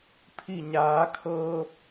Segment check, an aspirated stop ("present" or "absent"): present